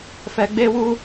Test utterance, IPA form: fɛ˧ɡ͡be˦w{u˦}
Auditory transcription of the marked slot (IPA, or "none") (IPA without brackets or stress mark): u˦